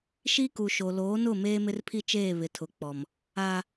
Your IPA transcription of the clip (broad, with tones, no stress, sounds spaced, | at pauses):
ʃ i˦ k u˨ ʃ o˨ l oː˨˦ n ʊ˦˨ m eː˦ m ɪ˦ r pʰ i˦ t͡ʃ eː˦˨ β ɪ˨ tʰ ʊ˨ k͡p ɔ˨ m | a˦